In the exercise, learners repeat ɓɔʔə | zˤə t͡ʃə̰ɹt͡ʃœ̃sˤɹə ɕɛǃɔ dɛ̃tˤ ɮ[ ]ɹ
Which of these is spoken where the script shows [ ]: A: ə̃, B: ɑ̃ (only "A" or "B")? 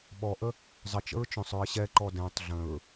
A